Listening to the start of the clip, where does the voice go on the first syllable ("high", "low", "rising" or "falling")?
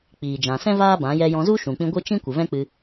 low